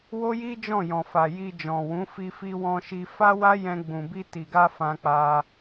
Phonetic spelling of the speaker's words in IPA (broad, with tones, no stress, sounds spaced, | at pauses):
w o˦ j i˦ d͡ʒ ɔ̃˦˨ j ɔ̃˨ f a˨ j i˧ d͡ʒ ɔ̃˨ w ũ˨˦ f i˧ f i˧ w ɔ̃˧ ʃ i˧ f a˦ w a˦ j ɛ̃˧ ɡ͡b ũ˨ b i˧ t i˨ ɡ a˧ f ã˧ k͡p a˧